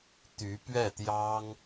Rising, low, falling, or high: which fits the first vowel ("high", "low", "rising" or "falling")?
rising